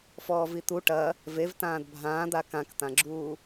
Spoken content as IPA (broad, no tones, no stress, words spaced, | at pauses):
fɔːvit̪u ʈɐ | vevtãːd bʱãːd̪a kãkt̪ãɡ͡ǁuː